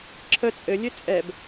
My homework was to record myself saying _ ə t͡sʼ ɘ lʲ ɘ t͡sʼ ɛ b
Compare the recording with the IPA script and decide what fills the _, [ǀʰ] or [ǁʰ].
ǁʰ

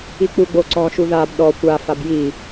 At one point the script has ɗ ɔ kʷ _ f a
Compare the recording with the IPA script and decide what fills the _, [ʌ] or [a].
a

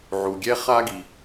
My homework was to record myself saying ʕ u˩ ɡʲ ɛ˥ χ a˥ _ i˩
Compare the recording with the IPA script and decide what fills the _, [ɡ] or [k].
ɡ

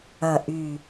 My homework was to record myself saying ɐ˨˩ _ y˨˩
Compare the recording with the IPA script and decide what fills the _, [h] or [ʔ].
ʔ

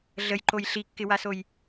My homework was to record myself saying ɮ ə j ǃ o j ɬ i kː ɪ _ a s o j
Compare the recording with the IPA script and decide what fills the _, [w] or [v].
w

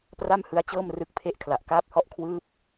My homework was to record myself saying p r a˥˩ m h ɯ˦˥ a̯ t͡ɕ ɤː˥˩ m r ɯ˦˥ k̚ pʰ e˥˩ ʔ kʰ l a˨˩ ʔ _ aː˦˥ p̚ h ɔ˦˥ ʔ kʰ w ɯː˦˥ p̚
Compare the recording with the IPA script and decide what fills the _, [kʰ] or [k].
k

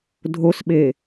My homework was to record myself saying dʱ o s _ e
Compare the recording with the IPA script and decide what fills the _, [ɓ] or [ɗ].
ɓ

